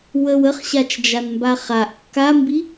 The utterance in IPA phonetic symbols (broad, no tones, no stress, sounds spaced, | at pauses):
w ə w ə χ ɕ a t͡ʃ d͡ʒ a n m b a χ a ʔ kː a m b i